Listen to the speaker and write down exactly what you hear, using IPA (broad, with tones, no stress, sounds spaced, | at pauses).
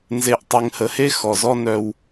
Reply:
n z e˨ ʔ tˤ e˨ ŋ h ə˨ h e˦ x ɔ˨ z ɔ˦ n œ˦ w